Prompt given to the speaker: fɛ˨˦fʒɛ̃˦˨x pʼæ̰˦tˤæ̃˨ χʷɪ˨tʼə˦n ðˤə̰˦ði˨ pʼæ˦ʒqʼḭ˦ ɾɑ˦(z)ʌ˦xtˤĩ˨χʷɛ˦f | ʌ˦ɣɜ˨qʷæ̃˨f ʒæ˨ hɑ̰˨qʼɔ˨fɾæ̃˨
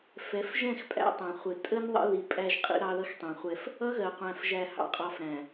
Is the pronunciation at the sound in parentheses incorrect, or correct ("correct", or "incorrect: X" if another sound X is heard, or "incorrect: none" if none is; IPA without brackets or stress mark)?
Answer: incorrect: ð